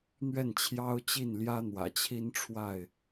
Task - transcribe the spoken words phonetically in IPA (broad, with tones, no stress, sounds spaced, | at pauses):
n̪ ɥ ɛ˥˨ n t͡ɕʰ j ɑ˦ ʊ̯ t͡ɕ i˥˨ n l j ä˦ n̪ w ä̰˨˩ t͡ɕʰ i˦ n ʈ͡ʂʰ w a˥˨ ɪ̯